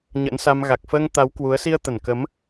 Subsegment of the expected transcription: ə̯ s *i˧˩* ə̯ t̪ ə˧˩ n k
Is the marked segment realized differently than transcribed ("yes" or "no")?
yes